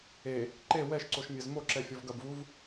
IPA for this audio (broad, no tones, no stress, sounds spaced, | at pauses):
e | ǃ e w ɛ ʃ ǀ o ʃ mʲ ɛ z m o ǁ ɛ fʲ ɔ v ɡ ɐ b v u v